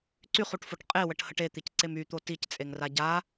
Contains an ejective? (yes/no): yes